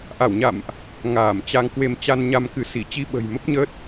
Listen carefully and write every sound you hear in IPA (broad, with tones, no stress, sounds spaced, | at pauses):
ʔ a˧˩ w ɲ a̰˧˨ m ʔ | ŋ aː˧˩ m t͡ɕ a˧ ŋ k w e˧ m t͡ɕ a˧ n ɲ a˧ m k ɨ˨˦ s i˧˩ t͡ɕ i˧ ɓ ə̤˨˩ j m ə˦˥ p̚ ɲ əː˦˥ t̚